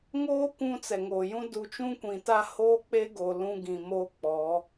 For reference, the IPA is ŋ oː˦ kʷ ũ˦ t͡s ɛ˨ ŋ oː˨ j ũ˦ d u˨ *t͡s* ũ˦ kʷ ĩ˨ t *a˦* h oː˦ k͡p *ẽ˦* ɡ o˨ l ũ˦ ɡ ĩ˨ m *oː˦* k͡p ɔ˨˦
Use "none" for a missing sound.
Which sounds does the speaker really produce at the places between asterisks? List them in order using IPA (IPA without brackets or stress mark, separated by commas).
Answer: t͡ʃ, a˦, e˦, oː˦